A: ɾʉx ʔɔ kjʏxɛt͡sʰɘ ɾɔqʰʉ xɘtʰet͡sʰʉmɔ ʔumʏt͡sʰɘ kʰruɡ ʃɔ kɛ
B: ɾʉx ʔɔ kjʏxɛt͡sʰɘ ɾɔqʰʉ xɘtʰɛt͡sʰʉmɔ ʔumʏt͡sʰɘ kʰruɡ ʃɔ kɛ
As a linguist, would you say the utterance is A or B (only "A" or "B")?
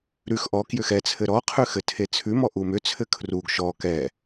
A